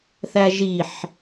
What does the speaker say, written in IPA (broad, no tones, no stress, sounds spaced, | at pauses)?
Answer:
θ æ ʒ i ħ